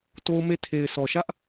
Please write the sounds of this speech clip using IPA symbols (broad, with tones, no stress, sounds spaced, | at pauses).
t o˦ ʊ̯ m e˦ tʰ e˨ ɪ̯ s ɔ˨ ʃ ä˦ ʔ